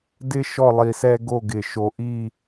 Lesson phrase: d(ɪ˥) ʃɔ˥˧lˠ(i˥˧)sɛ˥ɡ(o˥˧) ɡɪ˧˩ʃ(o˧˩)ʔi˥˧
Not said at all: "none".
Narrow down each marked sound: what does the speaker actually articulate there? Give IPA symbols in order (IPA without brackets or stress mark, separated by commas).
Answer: ɪ˥, i˧, o˥˧, o˧